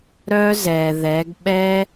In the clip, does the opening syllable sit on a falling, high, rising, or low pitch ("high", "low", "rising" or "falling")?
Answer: high